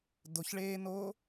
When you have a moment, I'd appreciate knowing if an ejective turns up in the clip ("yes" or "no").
no